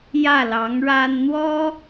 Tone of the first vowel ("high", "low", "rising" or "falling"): falling